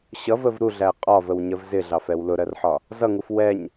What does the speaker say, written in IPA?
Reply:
ɕʌvəv ɾuɮæ qʼɒvəwɲəv zɪɮɑfɛw lʊɾɜrħɒ | zʌŋuf wɛɲ

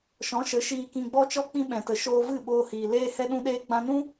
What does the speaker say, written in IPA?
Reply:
ʃɔ̃˨˦ʃə˨˦ ʃiː˧kĩ˧ɡ͡bɔ˦t͡ʃɔ˦ k͡pĩ˦ɓɛ̃˨tə˨ ʃoː˧vɨ˦˨ ɓoː˦hiː˨ leː˦hɛ˦ɗũ˦ɗeː˦ ɡ͡bã˧nũ˦

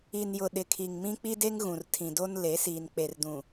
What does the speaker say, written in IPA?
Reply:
i˨njʊ˨ ɗɪ˨kʰi˨ŋmĩ˦ k͡pi˦de˦ŋ ɣũ˨rtʰĩ˨do˦n le˨˦siː˨n k͡pe˨rdũ˨

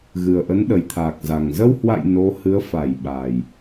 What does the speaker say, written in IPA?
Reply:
ɣɨ˨˩ə̯ʔə˨˦nɗə˨˩jt̪ʰaː˨˩k̚ za˨˩ŋ zə˧whwa̰˧˨j no˨˦hɨ˨˦ə̯fa˧˩jɓa˨˩j

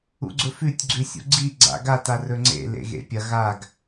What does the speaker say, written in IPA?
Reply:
ṵɡ͡ǀɵfʉtʲ ɡ͡ǀʉsʲṵɡ͡ǀi ɡ͡ǀa̰ɡa tarɵŋ͡ǀḛ lḛɣḛpʲɐ ɣaɡ

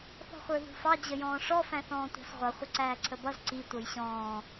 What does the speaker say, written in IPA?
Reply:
θɔ̤χʷə˞ðṳfɑ d͡ʑəjɔ̃ːʂɔ fæ̃θɔ̃ːtʷɑ̤sʁʷʌ χʷɪǀæːǀʰəbʌz ǀi tʷʌjɕɔ̃ː

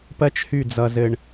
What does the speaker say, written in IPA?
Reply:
pɜ˦t͡ʃhy˦˨d͡zʌ˨ zɘ˨ɳ

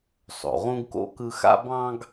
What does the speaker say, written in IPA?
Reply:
sˤo̰˩ʁũ˥ɡko̰˥kɯ˦ xa̰˦bɑ̃˦ɡ

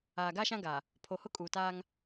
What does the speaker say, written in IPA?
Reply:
aː˨ɡa˦ʃã˦ɡa˨ | pʰo˨hʊ˦kʼuː˨taː˦ŋ

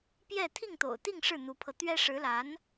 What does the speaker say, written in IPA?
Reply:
pjɛ˥˧ t̪ʰi˥˩ŋt̪o̰˨˩ʊ̯t̪i˥˧ŋ ʂɻ̩˥˩n̪u˧˥pʰɤ˧ t̪ɥɛ˥ ʂɻ̩˧˥la˧˥n

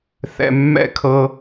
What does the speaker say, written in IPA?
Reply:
θɛ̰˨ mːɛ̰˦˨kʰɤ˦

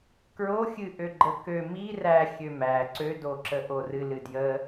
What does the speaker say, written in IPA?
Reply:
kɹoxʲɨ ʔøɡ͡ǃəkø mi ræ xʲømæ ǀødoǁə ʔorɨ lɨdjə

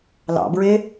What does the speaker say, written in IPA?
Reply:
lɑ̰bɹe

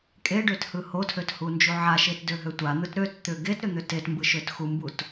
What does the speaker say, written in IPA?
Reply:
kʼeɖøt hɯhotʰøt hund͡ʒuʕaʃet døɦøtʷan̪ɯt ɾøt t̪ʏ ɡetɾʏ n̪ʏtetmbɯ ʃøtxumbut

